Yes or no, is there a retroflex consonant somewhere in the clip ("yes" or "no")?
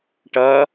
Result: yes